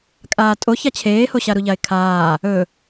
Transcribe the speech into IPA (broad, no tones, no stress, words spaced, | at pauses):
kʼaːtʼoç at͡ɕʰeːhoɕa ɾuʎaɪ̯kʰaː | ɵ